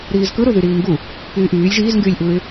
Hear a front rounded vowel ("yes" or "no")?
yes